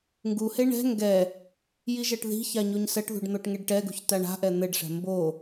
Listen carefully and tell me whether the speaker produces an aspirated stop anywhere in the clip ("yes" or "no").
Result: no